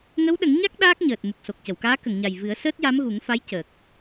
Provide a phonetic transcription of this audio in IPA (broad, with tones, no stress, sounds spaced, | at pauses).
ŋ ə˧˥ w ɗ ə˨˩˦ ŋ ɲ a˦˥ k̚ ɗ aː˦˥ k̚ ɲ əː˨˩ t̚ m u˨˩ k̚ s o˨˩ k̚ c ə˨˩˨ w k aː˧˥ k ə˨˩˨ ŋ ɲ a˨˩ j v ɨ˨˩˦ ə̯ s əː˦˥ t̚ j a˧˥ m ɣ u˨˩˦ ŋ f a˧˥ j c əː˨˩ k̚